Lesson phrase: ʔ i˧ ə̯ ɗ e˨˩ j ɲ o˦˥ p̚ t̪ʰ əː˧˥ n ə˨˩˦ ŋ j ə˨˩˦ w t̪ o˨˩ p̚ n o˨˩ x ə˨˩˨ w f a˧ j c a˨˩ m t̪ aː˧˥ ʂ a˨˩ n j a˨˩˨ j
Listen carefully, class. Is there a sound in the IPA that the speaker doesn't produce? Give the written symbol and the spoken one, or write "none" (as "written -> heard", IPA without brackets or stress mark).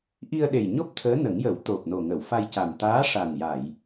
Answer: x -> ŋ